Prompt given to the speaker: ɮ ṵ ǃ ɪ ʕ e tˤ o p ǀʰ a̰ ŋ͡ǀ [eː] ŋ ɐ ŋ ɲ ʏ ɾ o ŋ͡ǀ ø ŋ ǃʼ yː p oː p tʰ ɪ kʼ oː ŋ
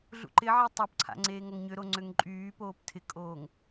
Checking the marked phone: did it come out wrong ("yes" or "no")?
no